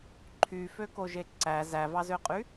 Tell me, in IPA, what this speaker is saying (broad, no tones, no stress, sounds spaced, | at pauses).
ǃʰ y f ø k o ʒ e ǀ æ z æ v ɑ z ø qʼ y